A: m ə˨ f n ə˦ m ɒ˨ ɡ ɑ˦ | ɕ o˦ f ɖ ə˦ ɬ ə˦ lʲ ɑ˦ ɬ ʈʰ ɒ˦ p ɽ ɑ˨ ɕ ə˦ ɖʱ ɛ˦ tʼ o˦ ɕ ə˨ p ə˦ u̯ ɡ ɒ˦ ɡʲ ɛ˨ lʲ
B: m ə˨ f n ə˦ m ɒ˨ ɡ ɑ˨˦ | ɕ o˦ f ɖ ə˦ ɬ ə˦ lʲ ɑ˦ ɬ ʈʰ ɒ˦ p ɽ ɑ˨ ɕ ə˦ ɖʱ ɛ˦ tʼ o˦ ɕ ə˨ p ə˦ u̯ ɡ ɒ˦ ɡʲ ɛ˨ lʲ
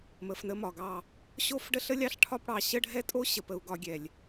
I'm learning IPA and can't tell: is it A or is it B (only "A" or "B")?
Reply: A